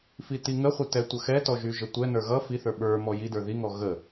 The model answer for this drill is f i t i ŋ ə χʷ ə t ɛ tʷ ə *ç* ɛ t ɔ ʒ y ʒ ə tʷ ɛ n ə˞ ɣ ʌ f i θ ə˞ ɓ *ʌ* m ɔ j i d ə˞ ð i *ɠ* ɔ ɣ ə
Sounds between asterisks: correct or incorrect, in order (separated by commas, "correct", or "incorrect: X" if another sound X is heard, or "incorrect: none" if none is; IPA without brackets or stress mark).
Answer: incorrect: x, incorrect: ə˞, incorrect: ŋ